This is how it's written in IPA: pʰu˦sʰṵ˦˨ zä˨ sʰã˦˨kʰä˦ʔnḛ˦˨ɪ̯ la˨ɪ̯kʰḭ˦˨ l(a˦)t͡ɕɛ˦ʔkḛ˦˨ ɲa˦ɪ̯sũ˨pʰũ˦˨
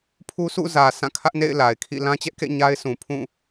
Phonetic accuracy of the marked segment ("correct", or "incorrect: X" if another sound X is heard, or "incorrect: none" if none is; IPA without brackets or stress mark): incorrect: ã˦